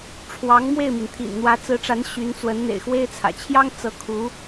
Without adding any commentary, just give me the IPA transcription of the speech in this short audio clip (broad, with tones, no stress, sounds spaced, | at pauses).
ʈ͡ʂʰ w ɑ˧˥ ŋ m w e˥˩ ɪ̯ m i˩ n t̪ʰ ḭ˨˩ n n̪ w ä˧˥ t͡s ɹ̩˧˥ ʈ͡ʂ a˧˥ n ɕ y˧˥ n t͡s w ə˧˥ n n̪ ḛ˨˩ ɪ̯ x w e˥ ɪ̯ t͡sʰ ä̰˨˩ t͡ɕʰ j ɑ˥ ŋ t͡s ɤ˧˥ kʰ u˧˥